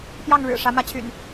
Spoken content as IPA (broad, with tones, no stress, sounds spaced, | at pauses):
p j ɑ˥˨ ŋ ɻ ɻ̩˨˩ ʂ ä˨˦ m ä˨˦ t͡ɕʰ y̰˨˩ n